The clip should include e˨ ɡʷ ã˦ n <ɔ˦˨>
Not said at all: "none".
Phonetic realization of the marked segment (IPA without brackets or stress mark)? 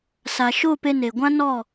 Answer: ɔ˦˨